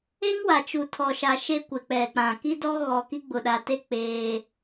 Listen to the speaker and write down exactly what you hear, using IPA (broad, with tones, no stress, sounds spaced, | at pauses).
e˦ ŋ w a˨ t͡ʃ u˨ tʰ ɔ˨ ʃ a˨ ʃ e˦ kʷ ɪ˨ k͡p ɛ˨ k͡p ã˨ k i˦ d ɔ˦ ɣ ɔ˨ k i˦ ɡ͡b ʊ˨ ɗ a˨ t e˦ k͡p eː˦